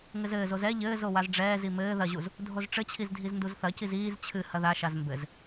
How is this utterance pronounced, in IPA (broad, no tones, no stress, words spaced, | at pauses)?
ŋɘzɘːzoz ɛ ʎɘːzo wazɖ͡ʐɛːzi mɘː ðɐʑuz | dʱozʈ͡ʂɘt͡ɕʰiz dʱiznduzθɐciz iːz t͡ɕʰɨ hɐðaʃaz mbɘz